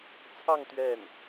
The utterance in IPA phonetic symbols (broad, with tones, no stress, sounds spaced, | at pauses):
t͡sʰ ɑ˥˧ ŋ t̪ ɥ ɛ˥˩ n